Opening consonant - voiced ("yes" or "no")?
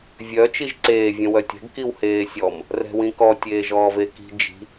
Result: yes